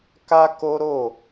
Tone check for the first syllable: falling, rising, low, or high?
high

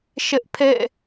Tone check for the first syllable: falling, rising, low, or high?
high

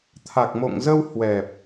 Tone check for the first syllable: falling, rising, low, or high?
low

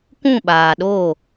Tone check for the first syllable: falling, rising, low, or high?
falling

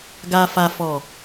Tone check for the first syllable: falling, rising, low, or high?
low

